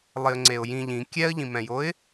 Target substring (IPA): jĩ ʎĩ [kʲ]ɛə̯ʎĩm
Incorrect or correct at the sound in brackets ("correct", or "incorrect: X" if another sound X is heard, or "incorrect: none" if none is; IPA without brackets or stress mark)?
correct